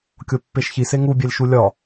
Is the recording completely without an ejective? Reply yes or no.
yes